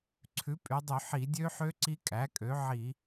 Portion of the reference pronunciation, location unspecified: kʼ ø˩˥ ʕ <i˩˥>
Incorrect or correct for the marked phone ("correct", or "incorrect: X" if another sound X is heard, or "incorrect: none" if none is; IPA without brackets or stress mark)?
incorrect: i˧˩˧